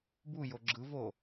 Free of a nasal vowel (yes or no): yes